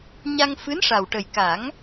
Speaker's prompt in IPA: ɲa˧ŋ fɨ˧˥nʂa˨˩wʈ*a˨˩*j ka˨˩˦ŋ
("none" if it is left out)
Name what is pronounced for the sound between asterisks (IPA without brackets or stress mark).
ə˨˩